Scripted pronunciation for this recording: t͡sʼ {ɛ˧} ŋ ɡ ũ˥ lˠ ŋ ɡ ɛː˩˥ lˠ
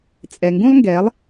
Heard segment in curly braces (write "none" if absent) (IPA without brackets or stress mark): ɛ˩